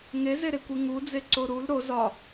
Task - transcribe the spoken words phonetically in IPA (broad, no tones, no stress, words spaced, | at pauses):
ŋezeɾekʷi ŋud͡zeǀo ɾul ɾo zɒ